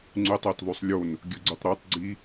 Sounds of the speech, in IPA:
ŋ͡ǀ ʉ tˤ a t ðˤ ʉ sˤ lʲ o n | ɡʲ ɵ ɡ͡ǀ u tˤ ɾ o tˤ ɡ͡ǀ i

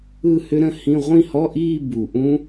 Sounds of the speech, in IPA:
ɯ˥˧ h ʏ˦˥ ɾ ə̃˦˥ h ĩ˧˥˧ ʁʷ ĩ˥˧ h ɔ˧˥˧ ʔ iː˥˧ b u˨˩ ʔ ũ˦˥

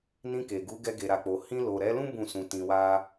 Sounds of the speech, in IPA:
n ĩ˧ k e˨ ɡ u˨˦ ɡ ɛ˧ ɡ e˨ ɾ a˨ k͡p o˨ h ĩ˧ l o˨ ɾ ɛ˨˦ l ũ˦ b ũ˦˨ s ũ˧ t ĩ˧ w a˦

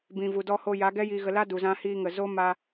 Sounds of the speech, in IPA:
b ĩ˨ v u˨ d ɔ˧ h o˧ j a˨˦ ɡ ɛ˦ j iː˧ ɣ ə˧ l a˦ d u˨ z ã˧ h iː˧ ŋ ə˨ z o˦ m a˧

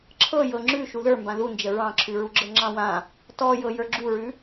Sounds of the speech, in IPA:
ǁʰ ɤ j ɤ ŋ͡ǁ ʉ ʃ u ð ə˞ m b ã ð u n d͡ʒ ə ɹ ɑ̃ ǁʰ ʉ ɹ u ɡ͡ǁ ɤ ŋ͡ǁ ɑ̃ w ã | t ɔ j ɤ j ə˞ ɡ͡ǁ u ɹ ʉ

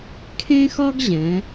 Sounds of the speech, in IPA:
kʰ ẽ˥ x ɒ˥ ɡ ʑ ɛ̃˩˧

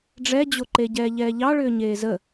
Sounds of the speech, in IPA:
ɖ͡ʐ ɛ d͡ʑ o ǃ e ɟ ɛː ʎ ɛː ʎ ɑ ɭ ʏː ɲ eː z ə

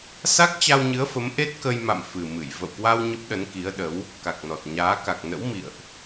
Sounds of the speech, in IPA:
s a˦˥ k̚ t͡ɕ a˧ w ɲ ɨ˨˦ ə̯ f ə˨˦ m ʔ e˦˥ t̚ k ə˧ j m a̰˧˨ m f ɨ˨˩ m ɨ˧˩ j v ə̰˧˨ w k w a˧ w ɲ ə˦˥ p̚ ɗ ə˨˦ n k i˨˦ ə̯ ɗ ə˨˦ w | k a˨˩ k̚ n ɔ˨˩ t̚ ɲ aː˨˦ k a˨˩ k̚ n ə̰˧˥ w m ḭ˧˨ ə̯ ʔ

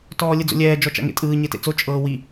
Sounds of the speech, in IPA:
t ɔː lʲ ɯ d͡z o̰ lʲ ɛː d͡ʒ ɔ t͡ʃ a̰ ŋ ḛ tʼ ɯː ɲ e t ḛ t͡s o t͡ʃʼ ɤː w i

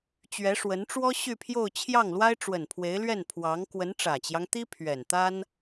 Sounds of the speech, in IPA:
t͡ɕ ɥ ɛ˧˥ ʂ w ə˧˥ n ʈ͡ʂ w ɔ˥ ɕ y˥˧ pʰ j o˥˧ ʊ̯ t͡ɕʰ j ɑ˥˩ ŋ l w a˥ ɪ̯ ʈ͡ʂ w ə˨˩ n pʰ w e˧˥ ɪ̯ l ɥ ɛ˥˩ n pʰ w ɑ˧˥ ŋ k w ə˧˥ n ʈ͡ʂ ä˨˩ t͡ɕ j ɑ˦ ŋ t̪ i˥ pʰ ɥ ɛ˨˩ n t̪ a˥ n

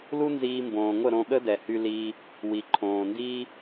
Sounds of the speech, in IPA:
l u˦ n z iː˧ m b õː˨ ŋʷ ə˦˨ ɾ õ˧ ɠ ə˦ d ɛ˨ h y˧ l iː˧ | w i˨ ǃʰ õː˨ n d iː˦

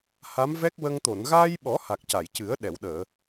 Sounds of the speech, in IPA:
h a˧˥ m v ɛ˦˥ k̚ w ə˧ ŋ t̪ o˨˩˨ n ɣ aː˧ j ɓ ɔ˨˩˦ h a˨˩ k̚ c a˨˩˨ j c ɨ˨˩˦ ə̯ ɗ ɛ˨˩˨ w ɗ əː˨˩˨

